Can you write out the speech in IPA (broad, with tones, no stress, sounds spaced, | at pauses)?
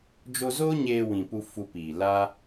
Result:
d͡ʒ o˧ z oː˦ ɲ eː˧ w ĩ˨ p u˧ f u˧ p iː˨ l a˦